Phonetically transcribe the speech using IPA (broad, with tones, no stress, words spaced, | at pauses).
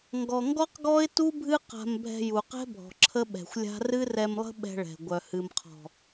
ŋɡɔ˨ŋɡɔ˦q ɡɔ˦ɪ̯tu˦bʱɨ˦ qa̤˧mbʱɛ̤˧ ju˨qɛ̤˦bʱɔ̤˨ ǁʰə˦ɓɛ̤˨xʷlʲa̤˦ rɨ˦rɛ˧mlˠə̤˦ ɓɛ̤˧ɭɛ̤˨ ɡʷœ˨hɨ˨mqʰɔ̤˨